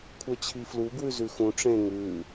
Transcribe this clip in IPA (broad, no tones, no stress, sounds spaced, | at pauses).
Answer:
kʷʰ ə˞ t͡ɕʰ i f l u ɡ w ʉ z ʉ x ũ ʈ͡ʂ ẽ ŋ ʉ